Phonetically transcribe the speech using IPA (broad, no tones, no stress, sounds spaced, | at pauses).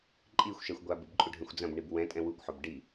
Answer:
ǃʼ i xʷ ʃ ɛ xʷ ɡʷ a b ɨ b ǃʼ u ɖʱ ɐ̃ xʷ d͡z ɐ̃ b ɳ i b w ɛ̃ tʼ ɛ̃ w u kʷ ħ o b ɖ i